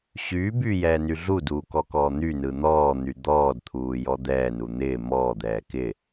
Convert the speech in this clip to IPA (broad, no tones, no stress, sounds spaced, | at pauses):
ɕ yː b yː j ɛː n y ɮ u d uː k ɔ k ɔː n̪ y n ɯ n̪ ɔː n̪ y d̪ ɔː d t̪ʰ uː j ɔ d̪ ɛː n u n̪ ɪː m ɔː d̪ ɛː k ɪ